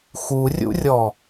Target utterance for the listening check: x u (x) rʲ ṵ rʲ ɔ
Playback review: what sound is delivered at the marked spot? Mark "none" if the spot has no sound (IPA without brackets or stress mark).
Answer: none